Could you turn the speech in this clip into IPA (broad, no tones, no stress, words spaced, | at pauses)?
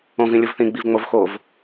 õvĩ lʲovθĩɡ͡biv ŋ͡mov xov